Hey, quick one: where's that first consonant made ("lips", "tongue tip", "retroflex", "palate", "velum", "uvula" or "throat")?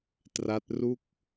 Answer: tongue tip